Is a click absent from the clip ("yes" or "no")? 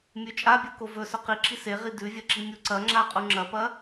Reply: no